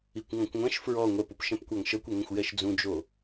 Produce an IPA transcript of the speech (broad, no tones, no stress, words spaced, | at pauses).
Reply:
ikʷŋɔ̃kʷŋʷɛ̃ʃ fɹɔ ŋʷɛpupʃɛ̃pkʷaŋ ʃɤkʷɛŋɛ̃xʷ jɛʃd͡zũd͡ʒo